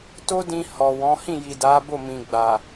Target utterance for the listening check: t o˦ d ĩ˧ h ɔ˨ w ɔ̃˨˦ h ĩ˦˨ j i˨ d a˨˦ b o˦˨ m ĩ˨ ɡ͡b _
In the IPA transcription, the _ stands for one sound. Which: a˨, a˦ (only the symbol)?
a˨